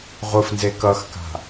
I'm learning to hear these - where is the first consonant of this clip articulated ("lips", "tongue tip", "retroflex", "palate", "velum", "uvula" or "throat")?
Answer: uvula